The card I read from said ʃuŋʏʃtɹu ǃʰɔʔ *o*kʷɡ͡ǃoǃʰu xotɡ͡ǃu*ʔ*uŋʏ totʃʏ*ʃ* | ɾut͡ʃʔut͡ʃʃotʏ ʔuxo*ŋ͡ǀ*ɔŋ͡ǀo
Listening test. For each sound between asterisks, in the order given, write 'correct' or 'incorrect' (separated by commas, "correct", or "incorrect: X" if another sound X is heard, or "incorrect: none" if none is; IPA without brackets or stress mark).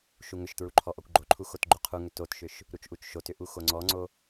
incorrect: ɔ, incorrect: qʰ, correct, correct